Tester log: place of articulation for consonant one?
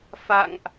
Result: labial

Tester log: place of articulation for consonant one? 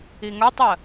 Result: velar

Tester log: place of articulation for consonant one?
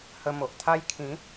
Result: glottal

